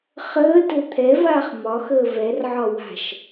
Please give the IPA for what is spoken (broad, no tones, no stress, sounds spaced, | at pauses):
χ əː t ɘ t̪ʰ ɛ v aː χ m ɒ x əː v ɛ r ʕ ɒ w a̤ ʃ